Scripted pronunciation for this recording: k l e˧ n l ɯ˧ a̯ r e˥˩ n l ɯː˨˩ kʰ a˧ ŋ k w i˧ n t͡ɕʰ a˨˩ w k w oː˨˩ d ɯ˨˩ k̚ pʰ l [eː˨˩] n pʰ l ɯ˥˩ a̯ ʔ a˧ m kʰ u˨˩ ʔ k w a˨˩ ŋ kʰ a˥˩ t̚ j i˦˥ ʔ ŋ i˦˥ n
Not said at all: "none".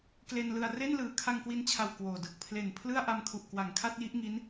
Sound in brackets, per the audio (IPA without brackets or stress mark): e˨˩